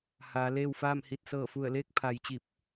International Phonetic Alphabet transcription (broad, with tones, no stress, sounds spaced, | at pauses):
h aː˩˧ l eː˥˨ w f aː˥˨ m h i˧ t̚ s ɤː˧˩ f u˧˩ ə̯ l eː˥˨ k̚ pʰ a˩˧ j t͡ɕ i˧˩ p̚